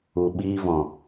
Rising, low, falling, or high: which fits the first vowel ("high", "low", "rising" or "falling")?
low